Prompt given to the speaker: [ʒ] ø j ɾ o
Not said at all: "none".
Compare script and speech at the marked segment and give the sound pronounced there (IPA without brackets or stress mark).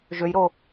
ʒ